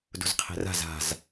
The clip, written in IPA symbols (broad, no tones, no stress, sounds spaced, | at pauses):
d ṳ z qʰ e̤ r a̤ z a̤ z